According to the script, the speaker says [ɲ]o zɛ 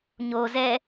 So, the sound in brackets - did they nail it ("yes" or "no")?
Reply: yes